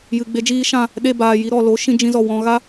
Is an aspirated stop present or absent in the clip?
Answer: absent